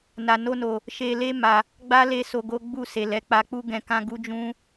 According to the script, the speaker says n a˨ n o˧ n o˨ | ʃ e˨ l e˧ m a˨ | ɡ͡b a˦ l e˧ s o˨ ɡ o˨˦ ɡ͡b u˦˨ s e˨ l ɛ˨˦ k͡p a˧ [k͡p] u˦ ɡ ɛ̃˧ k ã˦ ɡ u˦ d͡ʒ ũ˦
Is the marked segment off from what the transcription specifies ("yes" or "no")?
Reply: no